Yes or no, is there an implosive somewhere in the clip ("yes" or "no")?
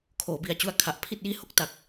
no